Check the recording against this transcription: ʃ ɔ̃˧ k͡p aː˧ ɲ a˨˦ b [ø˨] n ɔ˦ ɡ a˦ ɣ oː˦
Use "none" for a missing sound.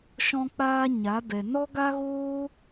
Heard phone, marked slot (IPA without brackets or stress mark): ɛ˨